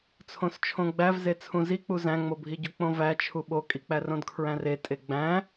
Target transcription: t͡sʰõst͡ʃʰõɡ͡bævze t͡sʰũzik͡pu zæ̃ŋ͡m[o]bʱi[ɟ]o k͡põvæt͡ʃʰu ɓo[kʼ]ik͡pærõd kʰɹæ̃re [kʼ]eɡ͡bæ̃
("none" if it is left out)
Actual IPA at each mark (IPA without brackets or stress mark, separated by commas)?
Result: o, ɟ, kʼ, tʼ